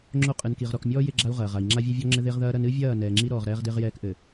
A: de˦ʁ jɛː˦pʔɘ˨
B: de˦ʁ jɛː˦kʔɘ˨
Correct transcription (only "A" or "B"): B